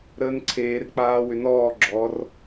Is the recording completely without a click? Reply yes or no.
no